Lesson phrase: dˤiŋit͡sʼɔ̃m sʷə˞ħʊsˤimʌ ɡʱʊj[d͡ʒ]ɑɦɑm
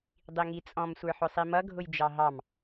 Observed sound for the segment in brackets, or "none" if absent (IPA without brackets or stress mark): d͡ʒ